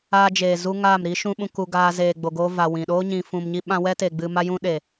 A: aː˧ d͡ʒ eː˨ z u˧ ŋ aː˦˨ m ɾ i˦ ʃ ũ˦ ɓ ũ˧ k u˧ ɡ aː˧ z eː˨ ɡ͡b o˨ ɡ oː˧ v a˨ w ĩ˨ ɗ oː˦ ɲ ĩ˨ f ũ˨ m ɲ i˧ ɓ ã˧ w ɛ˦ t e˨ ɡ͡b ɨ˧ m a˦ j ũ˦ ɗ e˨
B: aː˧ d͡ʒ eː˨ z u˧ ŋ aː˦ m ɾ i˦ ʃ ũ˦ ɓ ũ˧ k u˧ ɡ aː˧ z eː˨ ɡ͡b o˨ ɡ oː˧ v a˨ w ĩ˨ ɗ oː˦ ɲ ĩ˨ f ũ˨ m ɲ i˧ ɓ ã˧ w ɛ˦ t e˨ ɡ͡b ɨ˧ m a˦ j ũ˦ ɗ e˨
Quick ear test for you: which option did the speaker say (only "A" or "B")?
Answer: A